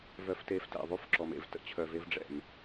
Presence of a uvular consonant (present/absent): absent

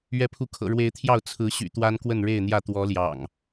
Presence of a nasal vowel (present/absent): absent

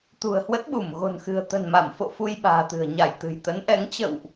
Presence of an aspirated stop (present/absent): absent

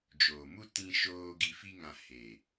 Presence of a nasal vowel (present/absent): present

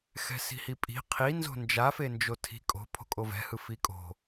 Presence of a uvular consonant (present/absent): present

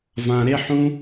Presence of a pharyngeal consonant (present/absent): present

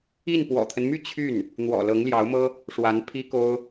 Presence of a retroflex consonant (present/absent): present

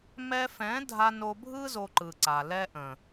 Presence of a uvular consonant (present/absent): absent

